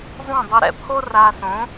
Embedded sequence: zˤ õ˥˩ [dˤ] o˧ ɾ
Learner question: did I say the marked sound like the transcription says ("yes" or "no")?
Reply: yes